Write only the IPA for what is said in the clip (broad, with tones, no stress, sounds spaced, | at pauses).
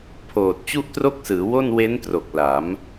pʰ oː˨˩ t̚ t͡ɕ u˥˩ ʔ t r o˥˩ k̚ s ɯː˩˦ w o˥˩ n w e˦˥ n t r o˨˩ k̚ l a˩˦ m